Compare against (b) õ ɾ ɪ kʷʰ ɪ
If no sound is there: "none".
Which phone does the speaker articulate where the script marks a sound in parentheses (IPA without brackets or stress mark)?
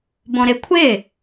b